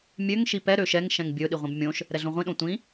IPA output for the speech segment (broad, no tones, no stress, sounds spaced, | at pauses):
mʲ ø ŋ ʃ i p ɛ ɾ ø ʃ ɛ ŋ ʃ ɛ̃ ŋ bʲ ɵ ɗ i ʁʷ ĩ b mʲ õ ʃ | ɾ ɛ ɮ õ ʁʷ ĩ ɗ õ tʷ ĩ